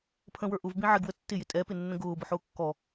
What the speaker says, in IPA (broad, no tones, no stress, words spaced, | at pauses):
pʰə̃wə˞ ʔʊvbĩ ʕɪɡwə tːɪjɪ tʼɛpɪnːə̃ ɡʊːbʊħʊː kːɔ